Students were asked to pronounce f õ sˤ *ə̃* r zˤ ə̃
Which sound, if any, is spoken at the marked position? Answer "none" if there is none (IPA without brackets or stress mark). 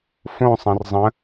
ə̃